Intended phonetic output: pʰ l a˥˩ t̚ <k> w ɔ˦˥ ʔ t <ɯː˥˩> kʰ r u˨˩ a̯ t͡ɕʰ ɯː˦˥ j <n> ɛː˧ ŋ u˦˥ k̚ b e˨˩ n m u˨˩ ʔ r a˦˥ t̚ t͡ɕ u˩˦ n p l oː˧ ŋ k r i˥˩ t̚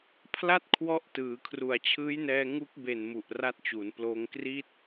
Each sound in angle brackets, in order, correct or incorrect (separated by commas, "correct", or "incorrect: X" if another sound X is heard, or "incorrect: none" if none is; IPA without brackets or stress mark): incorrect: kʰ, incorrect: ɯː˩˦, correct